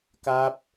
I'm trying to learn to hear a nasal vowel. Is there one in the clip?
no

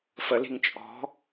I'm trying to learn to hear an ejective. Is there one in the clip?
yes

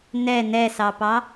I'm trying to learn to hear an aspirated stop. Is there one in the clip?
no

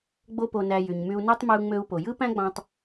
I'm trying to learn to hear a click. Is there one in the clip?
no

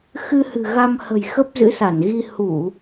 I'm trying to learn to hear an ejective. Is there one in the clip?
no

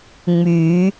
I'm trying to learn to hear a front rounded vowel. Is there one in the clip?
yes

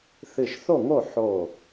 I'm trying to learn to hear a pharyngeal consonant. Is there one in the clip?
yes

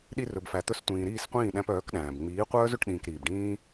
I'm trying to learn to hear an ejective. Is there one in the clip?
no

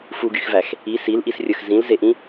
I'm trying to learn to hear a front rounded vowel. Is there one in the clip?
yes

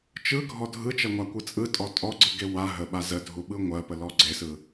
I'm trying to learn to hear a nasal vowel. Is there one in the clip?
no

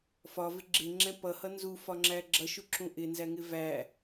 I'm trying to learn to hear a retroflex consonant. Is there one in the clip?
no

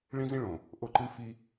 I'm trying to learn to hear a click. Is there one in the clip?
yes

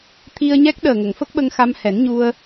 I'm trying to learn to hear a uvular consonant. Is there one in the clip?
no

